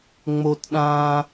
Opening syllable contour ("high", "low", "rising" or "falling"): high